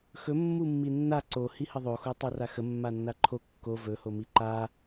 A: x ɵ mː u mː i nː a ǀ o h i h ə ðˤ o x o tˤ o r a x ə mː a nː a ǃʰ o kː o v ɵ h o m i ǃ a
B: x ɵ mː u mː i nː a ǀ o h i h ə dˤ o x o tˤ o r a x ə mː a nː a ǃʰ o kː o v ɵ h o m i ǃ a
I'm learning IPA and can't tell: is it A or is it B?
A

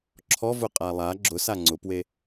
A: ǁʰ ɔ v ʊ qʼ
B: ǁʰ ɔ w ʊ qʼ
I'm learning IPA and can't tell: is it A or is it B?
A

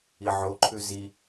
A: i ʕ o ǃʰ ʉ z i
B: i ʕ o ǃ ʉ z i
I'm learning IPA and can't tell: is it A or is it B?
A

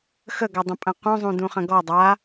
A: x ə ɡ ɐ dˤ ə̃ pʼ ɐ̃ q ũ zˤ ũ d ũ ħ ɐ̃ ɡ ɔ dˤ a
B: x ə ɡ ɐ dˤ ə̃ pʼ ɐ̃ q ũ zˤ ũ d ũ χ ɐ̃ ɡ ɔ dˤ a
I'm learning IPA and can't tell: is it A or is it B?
B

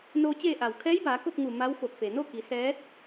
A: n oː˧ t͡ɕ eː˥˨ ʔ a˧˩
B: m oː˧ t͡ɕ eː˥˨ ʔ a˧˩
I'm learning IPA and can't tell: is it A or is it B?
A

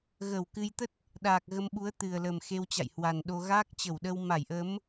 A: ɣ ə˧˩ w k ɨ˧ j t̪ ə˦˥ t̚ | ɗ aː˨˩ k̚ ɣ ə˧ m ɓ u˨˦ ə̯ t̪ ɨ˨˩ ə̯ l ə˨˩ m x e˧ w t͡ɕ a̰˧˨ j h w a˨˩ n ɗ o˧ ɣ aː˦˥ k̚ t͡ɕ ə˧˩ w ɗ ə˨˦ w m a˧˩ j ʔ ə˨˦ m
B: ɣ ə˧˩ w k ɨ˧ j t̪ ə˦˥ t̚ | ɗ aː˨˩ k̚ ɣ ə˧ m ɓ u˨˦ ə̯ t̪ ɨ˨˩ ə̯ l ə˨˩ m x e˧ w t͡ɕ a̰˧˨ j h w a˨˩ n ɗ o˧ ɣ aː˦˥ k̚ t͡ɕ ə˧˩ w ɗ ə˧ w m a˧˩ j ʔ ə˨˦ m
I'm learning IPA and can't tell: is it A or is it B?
B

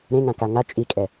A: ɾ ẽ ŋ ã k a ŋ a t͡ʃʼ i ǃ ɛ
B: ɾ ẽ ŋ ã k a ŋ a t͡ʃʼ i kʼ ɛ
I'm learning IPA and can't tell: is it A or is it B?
B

